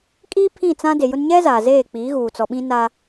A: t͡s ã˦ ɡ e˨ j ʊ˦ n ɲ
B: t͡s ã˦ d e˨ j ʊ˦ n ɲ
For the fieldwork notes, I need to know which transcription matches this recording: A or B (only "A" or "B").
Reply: B